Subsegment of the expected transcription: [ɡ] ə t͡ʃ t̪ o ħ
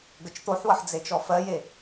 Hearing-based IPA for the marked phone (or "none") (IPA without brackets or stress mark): ɡ